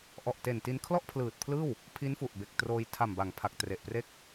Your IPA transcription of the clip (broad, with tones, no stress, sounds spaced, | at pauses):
ʔ ɔ˨˩ ʔ t e˨˩ n t i˧ n kʰ l ɔ˥˩ ʔ pʰ l ɯː˨˩ t̚ pʰ l ɯː˥˩ w | pʰ i˦˥ n f u˨˩ ʔ b e˨˩ k̚ t r oː˧ j tʰ a˨˩ m b a˩˦ ŋ pʰ a˨˩ k̚ t r e˨˩ ʔ p r e˥˩ k̚